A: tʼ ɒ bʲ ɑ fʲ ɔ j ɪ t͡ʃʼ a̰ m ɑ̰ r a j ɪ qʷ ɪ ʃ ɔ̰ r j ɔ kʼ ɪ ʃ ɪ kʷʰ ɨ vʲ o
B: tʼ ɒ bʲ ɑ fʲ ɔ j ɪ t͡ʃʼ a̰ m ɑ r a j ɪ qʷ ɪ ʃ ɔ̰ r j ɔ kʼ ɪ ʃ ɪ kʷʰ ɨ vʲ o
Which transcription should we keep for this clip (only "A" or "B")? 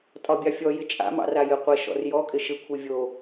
A